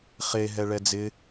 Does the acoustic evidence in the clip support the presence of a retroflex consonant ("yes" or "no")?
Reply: yes